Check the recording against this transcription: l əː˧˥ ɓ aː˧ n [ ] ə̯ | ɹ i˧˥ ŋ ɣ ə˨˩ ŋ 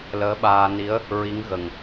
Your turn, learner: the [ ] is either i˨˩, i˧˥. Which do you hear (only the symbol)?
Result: i˧˥